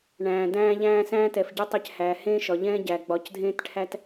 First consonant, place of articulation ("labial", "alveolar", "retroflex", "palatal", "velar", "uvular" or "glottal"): retroflex